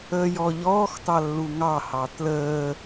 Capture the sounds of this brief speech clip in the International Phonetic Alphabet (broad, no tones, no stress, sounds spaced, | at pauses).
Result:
əː j ɔ ʎ ɔː x t ɑ lː u ŋ ɑ h ɑ t l əː